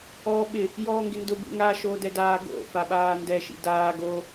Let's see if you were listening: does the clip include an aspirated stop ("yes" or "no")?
no